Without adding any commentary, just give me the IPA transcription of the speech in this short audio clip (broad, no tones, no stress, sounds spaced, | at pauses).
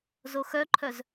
z o x œ ǃʰ œ z